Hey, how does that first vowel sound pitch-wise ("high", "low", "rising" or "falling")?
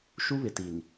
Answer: high